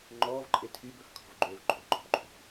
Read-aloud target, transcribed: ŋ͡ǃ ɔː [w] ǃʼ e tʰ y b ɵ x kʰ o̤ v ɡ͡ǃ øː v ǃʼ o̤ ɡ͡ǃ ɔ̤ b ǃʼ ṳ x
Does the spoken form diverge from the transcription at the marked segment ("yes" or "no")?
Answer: yes